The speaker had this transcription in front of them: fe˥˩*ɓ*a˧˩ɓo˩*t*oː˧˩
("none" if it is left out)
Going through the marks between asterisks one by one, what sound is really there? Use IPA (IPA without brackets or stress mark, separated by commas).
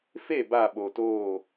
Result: b, t